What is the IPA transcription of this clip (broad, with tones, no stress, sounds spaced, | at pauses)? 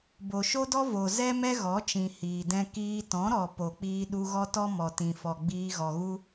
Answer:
b o˨ ʃ o˦ d ɔ˦ v o˨ z ɛ˦ m ɛ˦ ɣ ɔ˨˦ t͡ʃ ĩ˨ h iː˨ d ɛ̃˦ k iː˧ t ɔ̃˨˦ ɾ ɔ˨ p o˨ k͡p iː˧ ɗ u˧ ɣ ɔ˦ t ɔ˦ m ɔ˨ t ĩ˨ f ɔ˨ ɡ͡b iː˧ ɣ ɔ˨ ɣ u˦